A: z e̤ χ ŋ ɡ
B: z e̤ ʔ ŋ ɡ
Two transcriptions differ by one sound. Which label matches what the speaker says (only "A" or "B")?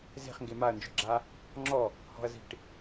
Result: A